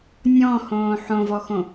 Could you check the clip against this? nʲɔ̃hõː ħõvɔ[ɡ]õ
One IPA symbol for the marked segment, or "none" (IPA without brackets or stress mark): x